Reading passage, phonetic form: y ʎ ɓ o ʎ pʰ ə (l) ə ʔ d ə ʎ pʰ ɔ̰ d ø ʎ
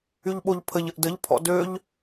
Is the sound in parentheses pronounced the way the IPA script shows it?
no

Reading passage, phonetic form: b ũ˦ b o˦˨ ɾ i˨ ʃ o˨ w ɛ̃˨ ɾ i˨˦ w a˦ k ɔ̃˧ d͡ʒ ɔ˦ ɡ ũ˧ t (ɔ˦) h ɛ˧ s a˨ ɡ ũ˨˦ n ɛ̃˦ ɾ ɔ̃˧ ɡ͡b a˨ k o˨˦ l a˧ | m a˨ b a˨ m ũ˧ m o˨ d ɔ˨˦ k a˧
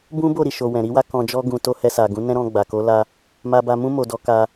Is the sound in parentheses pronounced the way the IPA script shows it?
no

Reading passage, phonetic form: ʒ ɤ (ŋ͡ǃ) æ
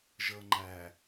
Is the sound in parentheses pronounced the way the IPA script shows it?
yes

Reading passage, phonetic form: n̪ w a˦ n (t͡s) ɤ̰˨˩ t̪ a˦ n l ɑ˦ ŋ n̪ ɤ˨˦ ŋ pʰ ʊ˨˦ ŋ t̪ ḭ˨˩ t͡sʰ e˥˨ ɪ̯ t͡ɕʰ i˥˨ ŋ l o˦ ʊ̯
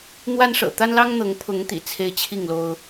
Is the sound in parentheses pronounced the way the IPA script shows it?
no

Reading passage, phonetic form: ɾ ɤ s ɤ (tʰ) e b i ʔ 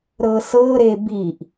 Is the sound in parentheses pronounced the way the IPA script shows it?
no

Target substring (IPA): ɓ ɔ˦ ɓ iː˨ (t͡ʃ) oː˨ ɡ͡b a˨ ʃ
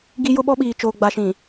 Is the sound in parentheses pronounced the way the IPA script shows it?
yes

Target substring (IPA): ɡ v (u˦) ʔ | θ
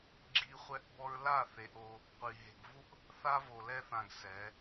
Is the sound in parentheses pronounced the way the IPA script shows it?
yes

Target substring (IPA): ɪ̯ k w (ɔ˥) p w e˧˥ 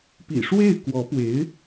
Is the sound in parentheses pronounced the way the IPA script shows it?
no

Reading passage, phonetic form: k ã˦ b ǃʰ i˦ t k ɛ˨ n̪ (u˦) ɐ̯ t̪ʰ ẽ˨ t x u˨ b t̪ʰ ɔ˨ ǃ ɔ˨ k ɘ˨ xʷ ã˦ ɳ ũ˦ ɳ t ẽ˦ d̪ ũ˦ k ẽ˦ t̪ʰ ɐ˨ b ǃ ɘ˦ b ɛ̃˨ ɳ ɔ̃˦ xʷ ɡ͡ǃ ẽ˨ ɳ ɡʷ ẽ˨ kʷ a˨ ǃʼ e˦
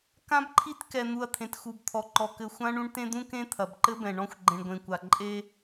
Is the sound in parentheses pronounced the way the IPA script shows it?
no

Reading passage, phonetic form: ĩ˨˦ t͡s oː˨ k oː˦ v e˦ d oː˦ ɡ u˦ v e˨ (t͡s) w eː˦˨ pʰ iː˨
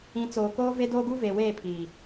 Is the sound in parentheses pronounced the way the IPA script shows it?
no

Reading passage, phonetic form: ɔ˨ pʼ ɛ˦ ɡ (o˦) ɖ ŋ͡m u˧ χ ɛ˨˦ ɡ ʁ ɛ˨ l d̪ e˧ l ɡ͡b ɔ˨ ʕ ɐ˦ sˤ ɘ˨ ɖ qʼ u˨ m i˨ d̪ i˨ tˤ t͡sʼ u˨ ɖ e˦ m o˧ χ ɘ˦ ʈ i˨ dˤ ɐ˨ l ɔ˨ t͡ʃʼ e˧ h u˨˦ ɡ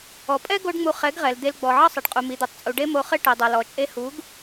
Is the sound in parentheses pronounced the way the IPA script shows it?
yes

